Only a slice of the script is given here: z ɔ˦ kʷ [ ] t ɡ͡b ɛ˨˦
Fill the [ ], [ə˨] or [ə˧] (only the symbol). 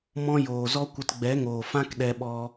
ə˧